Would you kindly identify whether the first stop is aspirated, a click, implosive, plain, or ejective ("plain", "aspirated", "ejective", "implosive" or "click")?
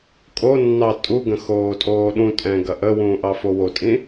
ejective